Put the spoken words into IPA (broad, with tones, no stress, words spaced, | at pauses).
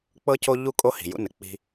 k͡pɤ˦ co˦ʎu˦kʼo˦ hi̤˨jṵ˦nɘ˨k͡pi̤˦